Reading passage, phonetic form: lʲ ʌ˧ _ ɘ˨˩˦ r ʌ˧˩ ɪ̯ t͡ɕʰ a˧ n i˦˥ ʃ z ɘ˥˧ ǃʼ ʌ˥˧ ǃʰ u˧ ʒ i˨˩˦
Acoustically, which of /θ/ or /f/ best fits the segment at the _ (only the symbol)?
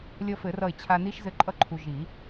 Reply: f